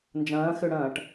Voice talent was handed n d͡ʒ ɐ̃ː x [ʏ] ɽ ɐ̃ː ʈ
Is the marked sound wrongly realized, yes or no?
no